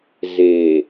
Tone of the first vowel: low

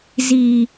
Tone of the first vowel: low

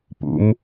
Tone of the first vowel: rising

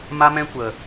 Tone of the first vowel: high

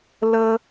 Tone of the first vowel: low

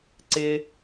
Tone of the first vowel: low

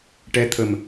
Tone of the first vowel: rising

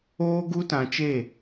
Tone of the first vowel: high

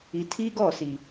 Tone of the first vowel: low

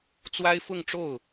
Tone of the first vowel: high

